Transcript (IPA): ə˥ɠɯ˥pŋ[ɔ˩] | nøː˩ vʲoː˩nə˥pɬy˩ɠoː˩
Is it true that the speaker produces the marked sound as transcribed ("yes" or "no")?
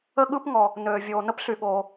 yes